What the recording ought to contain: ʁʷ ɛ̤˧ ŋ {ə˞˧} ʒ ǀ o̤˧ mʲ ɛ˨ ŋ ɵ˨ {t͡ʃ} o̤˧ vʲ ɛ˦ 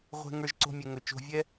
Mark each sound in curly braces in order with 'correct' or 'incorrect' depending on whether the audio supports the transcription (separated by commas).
correct, correct